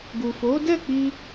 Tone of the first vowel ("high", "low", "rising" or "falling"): low